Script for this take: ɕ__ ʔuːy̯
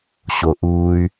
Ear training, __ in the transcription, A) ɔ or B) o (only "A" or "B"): B